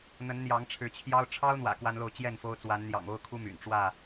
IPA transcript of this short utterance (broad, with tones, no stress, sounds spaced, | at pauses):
n̪ ə˨˦ n n̪ j ɑ˨˦ ŋ ʈ͡ʂʰ ɻ̩˨˦ t͡ɕʰ j ɑ˦ ʊ̯ ʈ͡ʂʰ ɑ˦ ʊ̯ n̪ w ä̰˨˩ k w a˦ n l o˥˨ ʊ̯ t͡ɕ j ɛ˥˨ n f o˦ ʊ̯ t͡s w a˨˦ n n̪ j ɑ̰˨˩ ŋ o˦ ʊ̯ kʰ u˦ m y̰˨˩ n ʈ͡ʂ w ä˥˨